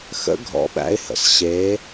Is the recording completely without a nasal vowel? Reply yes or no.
yes